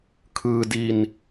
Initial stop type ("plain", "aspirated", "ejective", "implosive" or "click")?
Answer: aspirated